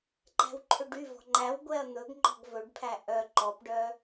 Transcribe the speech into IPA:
ǃ æ̤ w ǃʰ ø ɖ y v ɔ̤ ŋ͡ǃ æ w ɡʷ ɛ ɐ̯ n̪ ɵ ɡ ŋ͡ǃ ɔ̤ ɡ v ɵ ɖ pʰ æ ʔ œ ǃ ɔ p ɖ œ

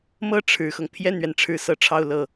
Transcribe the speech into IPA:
m ɤ˥˩ ʈ͡ʂʰ ɻ̩˨˩ x ɤ˦ ŋ pʰ j ɛ˥˩ n ɥ ɛ˩ n ʈ͡ʂʰ ɻ̩˥˩ s ɤ˥ ʈ͡ʂʰ ɑ˥˧ ʊ̯ l ɤ˥˩

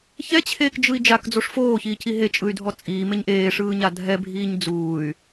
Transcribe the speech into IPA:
ç ɛ t͡ɕʰ eː k d͡ʒ ɯ i̯ d͡ʒ a k d͡z o ʂ f oː ç iː c i ɦ e t͡ʃʼ ɯ y̯ dʱ ɔ t͡sʼ iː m e ɲ ʔ eː ʂ ɯː ɲ a dʱ ɛ bʱ iː ɲ d͡z uː y̯

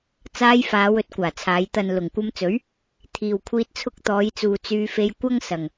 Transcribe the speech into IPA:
t͡s aː˧ j f aː˨˧ w ɵ˧ t̚ kʷ aː˨˩ t͡sʰ aː˨˧ j t̪ ɐ˨ n l ʊ˨˩ ŋ kʷ ɐ˧ m t͡s ɵ˨˥ ɥ | t̪ʰ iː˨ w kʷʰ iː˧ t̚ t͡sʰ ʊ˧ k̚ t̪ ɔː˨˧ j t͡s uː˨ t͡s yː˧ f e˧ j kʷ ɐ˥ ŋ s ɐ˨ ŋ

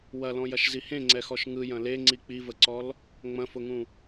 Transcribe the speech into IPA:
w ɐ l ɔ̃ j ɐ ʃ z i h ẽ ŋ͡ǀ ɛ x ɔ ʃ ŋ ɯ j ɐ̃ l e ŋ͡ǀ i k͡p i v ə ǀ ɔ l | ŋ͡m ɐ̃ f ʊ ŋ ũ

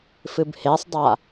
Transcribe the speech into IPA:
f ɨ b h e sˤ dˤ a

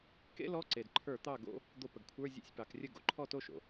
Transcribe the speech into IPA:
k ḛ˥ l ɔ˧˥˧ ǀ e˩ d ǃʰ ə˞˧˩˧ t̪ ɑ˥˩ ɡ o̰˧˥˧ | d̪ o˧˩˧ p ə˩ ɡ kʷʰ ə˞˧˥˧ zʲ o̰˧˥˧ sʲ p ɑ˩˧ k rʲ ə˥˩ ɡ o̰˩ ǃʰ ɔ˥˩ t o˥˩ ʃ o̰˩

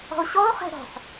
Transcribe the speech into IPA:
ɔ̤ o̯ ɕ ɔ o̯ χ ɛ̤ ɾ ɔ̤ ħ

